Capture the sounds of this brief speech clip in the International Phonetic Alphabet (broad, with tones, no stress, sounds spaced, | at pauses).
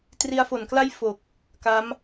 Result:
t r i˧ a̯ f o˩˦ n k l a˥˩ j f o˨˩ k̚ | k a˦˥ m